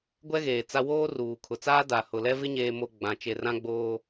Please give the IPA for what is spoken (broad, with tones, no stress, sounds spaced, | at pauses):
ɡʷ ɛ˦ ɣ eː˨ t͡s a˦ w oː˦ r uː˨ kʰ ʊ˨ t͡s aː˦ d a˨ h ʊ˨ l ɛ˦ v ɪ˦ ɲ eː˨ m o˨ ɡ͡b ã˨ t͡ʃ e˨ r ã˦ ɡ͡b oː˦